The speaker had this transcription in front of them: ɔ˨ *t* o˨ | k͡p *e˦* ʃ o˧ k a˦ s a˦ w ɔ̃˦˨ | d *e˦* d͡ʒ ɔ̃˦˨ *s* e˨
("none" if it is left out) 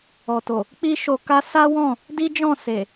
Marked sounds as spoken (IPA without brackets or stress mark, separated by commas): t, i˦, i˦, s